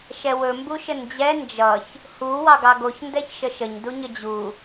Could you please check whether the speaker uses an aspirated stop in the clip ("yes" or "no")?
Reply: no